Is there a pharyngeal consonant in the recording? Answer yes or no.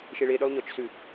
no